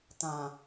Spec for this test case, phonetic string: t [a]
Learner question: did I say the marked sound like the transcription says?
no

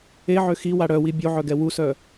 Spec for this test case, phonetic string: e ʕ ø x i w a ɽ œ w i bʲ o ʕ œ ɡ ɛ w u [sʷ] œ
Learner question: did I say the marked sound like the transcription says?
no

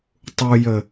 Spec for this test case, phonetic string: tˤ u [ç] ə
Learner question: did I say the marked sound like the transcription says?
no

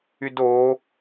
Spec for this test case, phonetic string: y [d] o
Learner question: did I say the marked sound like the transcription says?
yes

